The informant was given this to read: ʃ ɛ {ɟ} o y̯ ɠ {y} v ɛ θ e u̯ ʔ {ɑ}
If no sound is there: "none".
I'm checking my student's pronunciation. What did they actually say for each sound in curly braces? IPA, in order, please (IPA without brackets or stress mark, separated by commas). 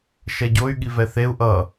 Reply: ɟ, i, ʌ